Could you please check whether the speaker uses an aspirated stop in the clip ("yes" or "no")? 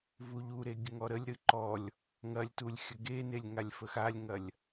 no